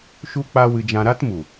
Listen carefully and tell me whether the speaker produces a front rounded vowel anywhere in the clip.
no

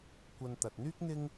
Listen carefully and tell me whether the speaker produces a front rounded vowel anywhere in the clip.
yes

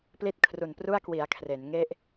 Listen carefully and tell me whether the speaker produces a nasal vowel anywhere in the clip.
no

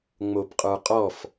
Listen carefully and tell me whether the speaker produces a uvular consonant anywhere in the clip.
yes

